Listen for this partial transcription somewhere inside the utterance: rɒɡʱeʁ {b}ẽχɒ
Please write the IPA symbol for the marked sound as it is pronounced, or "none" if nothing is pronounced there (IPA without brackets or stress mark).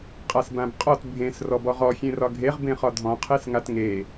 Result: b